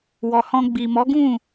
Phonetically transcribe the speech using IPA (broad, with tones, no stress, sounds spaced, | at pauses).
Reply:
w ɔ˨ h ɔ̃˧ ɡ͡b i˨ m ɔ˨˦ ɡ ũ˦˨